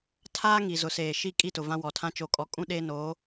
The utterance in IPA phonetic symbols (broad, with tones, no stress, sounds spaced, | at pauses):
tʰ aː˦ ŋ i˨ z ʊ˨ s eː˨ ʃ i˦ kʼ i˦˨ t ʊ˨ v ã˦ w ɔ˨ tʰ ã˦ t͡ʃ o˨ kʼ ɔ˨˦ kʼ ũ˦ ɗ eː˦ n oː˨˦